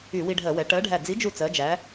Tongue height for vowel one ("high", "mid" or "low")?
high